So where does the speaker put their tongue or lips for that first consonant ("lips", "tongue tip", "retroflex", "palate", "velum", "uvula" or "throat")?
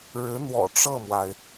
retroflex